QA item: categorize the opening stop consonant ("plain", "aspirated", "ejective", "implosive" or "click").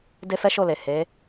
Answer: plain